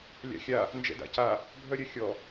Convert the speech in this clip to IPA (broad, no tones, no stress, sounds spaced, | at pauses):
lʲ a̰ xʲ a | n d͡ʒ ɛ̰ d a̰ c a | bʱ œ ɾʲ œ xʲ ɔ